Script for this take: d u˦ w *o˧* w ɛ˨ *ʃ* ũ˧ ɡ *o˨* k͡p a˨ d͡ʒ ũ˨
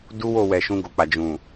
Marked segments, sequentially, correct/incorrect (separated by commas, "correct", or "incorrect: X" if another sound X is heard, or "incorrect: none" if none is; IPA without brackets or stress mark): incorrect: o˦˨, correct, correct